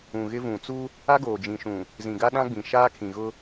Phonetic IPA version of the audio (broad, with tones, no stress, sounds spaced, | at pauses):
ũ˨ ɣ ɪ˦ v ũ˨ t͡s u˦ | a˦ ɡ oː˨ d͡ʒ ĩ˨ ʃ ũ˨ | z ĩ˨ ɡ a˦ ɗ ã˦ ɡ͡b ĩ˨ ʃ aː˦ kʰ ĩ˨ ɣ ʊ˦